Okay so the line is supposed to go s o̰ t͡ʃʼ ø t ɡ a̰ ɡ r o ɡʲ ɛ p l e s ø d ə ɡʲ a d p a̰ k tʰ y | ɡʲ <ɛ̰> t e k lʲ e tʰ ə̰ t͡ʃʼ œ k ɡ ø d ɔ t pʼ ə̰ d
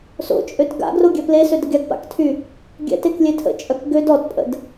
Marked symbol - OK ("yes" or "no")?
yes